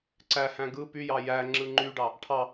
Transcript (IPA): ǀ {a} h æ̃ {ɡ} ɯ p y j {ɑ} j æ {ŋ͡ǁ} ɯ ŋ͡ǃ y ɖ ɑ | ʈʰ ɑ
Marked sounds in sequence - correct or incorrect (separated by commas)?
incorrect, correct, correct, correct